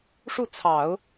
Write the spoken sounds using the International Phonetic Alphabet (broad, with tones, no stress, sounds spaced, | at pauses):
ʂ u˥˩ t͡sʰ ɑ˨˩˦ ʊ̯